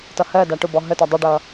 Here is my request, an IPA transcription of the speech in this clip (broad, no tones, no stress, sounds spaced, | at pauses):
t ʌ h ɜ d a ʈ ʊ b ɔ ɦ ə t ɐ dˤ ə ɖ ʌ